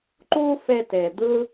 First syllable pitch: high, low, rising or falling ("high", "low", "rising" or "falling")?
high